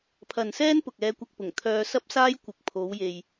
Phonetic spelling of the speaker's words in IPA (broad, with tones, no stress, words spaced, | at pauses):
pʰɐ˨nsɛː˥n pʊ˨k̚ɛː˧kʷɐ˧k̚pʊ˨˩ŋ t̪ʰœː˧ sɐ˥p̚saː˥j kʷɪ˨k̚ pʰo˨˥wje˨j